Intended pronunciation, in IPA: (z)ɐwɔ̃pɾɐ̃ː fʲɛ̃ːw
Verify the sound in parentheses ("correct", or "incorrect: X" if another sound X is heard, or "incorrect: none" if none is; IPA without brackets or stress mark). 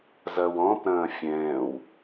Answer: correct